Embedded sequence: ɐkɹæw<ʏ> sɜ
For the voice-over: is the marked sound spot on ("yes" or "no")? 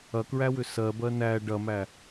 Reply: yes